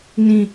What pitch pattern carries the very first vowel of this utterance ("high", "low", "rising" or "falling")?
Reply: falling